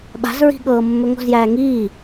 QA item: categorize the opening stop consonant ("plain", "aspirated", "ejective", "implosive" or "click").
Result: implosive